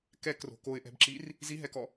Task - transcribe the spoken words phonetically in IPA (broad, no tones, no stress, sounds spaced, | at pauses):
k ɛ k r o̤ k o ɪ̯ ʔ ɛ̤ b ǁ i r | z i ɦ ɛ k ɔ